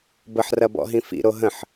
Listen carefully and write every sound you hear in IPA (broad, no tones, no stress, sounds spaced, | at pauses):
b ə ħ r ɐ b ɔ̰ ɦ ĩ f ḭ ɾ o ɦ ə̃ ħ